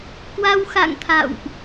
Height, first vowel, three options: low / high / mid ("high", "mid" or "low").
low